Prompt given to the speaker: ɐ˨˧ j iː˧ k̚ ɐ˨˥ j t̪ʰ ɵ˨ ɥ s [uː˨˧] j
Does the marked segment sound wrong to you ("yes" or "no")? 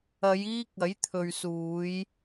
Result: no